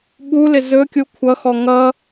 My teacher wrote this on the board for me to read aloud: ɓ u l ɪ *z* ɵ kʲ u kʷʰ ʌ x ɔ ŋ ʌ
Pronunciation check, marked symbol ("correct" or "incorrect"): correct